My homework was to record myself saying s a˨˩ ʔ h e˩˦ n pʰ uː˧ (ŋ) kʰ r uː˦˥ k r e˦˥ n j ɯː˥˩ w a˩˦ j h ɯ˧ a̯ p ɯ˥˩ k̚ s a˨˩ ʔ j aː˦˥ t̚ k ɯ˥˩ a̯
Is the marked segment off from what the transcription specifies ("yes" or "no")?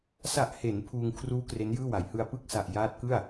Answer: no